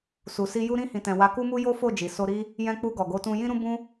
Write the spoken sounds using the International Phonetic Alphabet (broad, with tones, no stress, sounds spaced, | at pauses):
s u˨ s i˧ j u˧ ɾ ĩ˧ h ĩ˨ t ɛ̃˨ w a˨˦ k u˦ m u˦ j o˦ f o˦˨ d͡ʒ i˨ s o˧ ɾ i˦ | j ɛ̃˧ k͡p u˧ ɡ ɔ˨ ɡ o˨˦ t ũ˧ j ĩ˦ ɾ ũ˦ b ũ˦